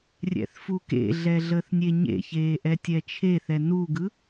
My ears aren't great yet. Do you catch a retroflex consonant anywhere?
no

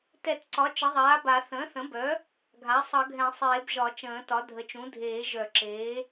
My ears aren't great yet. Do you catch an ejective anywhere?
no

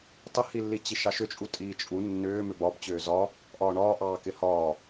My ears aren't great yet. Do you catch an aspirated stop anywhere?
no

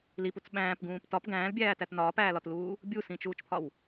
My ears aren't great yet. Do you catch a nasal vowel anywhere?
yes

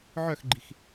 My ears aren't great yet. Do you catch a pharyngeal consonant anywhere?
yes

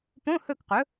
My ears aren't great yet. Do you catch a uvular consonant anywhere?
yes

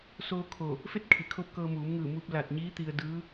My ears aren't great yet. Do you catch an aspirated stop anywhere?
yes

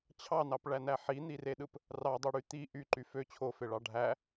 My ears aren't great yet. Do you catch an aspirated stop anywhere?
yes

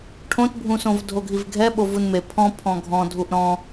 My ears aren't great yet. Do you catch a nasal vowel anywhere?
yes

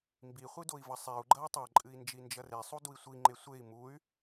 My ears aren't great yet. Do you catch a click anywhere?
yes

